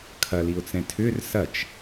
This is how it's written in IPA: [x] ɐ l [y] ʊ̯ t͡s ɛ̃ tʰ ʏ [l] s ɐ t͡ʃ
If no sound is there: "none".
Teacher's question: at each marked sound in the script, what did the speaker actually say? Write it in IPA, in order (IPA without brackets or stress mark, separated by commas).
kʰ, i, r